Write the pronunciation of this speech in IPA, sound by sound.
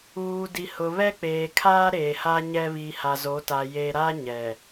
uː˨ d i˨ h ʊ˨ β ɛ˦ k͡p eː˨ kʰ aː˦ ɾ eː˨ h a˦ ɲ ɛ˦ β i˨ h a˨ z o˨˦ t a˨ j e˨ ɾ a˦ ɲ ɛ˨

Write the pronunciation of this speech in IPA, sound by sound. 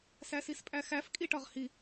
s æ s i s pʼ æ x æ f kʼ i ʈ ɒ ʁ h i

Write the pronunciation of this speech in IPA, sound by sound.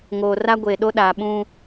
ŋ oː˨ r a˦ ɡʷ e˨ ɗ o˦ ɗ aː˨ ɓ ũ˦

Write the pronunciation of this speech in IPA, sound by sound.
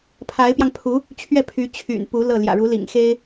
pʰ a˧˥ ɪ̯ p j ɑ˧ ŋ pʰ u˧˥ | t͡ɕʰ ɥ ɛ˥˩ pʰ y˧˥ t͡ɕʰ y̰˨˩ n p u˧˥ l ɤ˥˩ l j ä̰˨˩ ɻ u˧˥ l ḭ˨˩ ŋ x e˥ ɪ̯

